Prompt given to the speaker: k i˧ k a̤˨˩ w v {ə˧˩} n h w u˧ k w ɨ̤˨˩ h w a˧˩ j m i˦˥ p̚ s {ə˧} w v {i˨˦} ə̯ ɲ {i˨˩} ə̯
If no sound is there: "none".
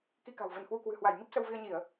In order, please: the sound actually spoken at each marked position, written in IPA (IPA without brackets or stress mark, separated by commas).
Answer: ə˧˩, ə˧, i˧, i˧˩˨